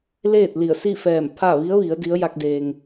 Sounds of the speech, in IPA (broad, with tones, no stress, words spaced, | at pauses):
leː˥˨t̚li˧˩ə̯si˥˨fɛː˧˩m pʰa˥˨ ʋi˧˥ə̯ʋi˩˧ə̯ di˧˥ə̯ ja˧k̚deː˩ŋ